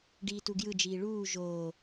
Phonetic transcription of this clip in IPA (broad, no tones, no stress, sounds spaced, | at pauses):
ɖ iː t u ɡ j ɯ d͡ʒ iː ɭ uː ʒ oː